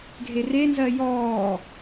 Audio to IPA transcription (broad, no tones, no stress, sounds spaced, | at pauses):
ɡʱ e r e n z ɜ j ɔː